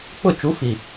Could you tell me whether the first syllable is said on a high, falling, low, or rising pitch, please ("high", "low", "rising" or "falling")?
falling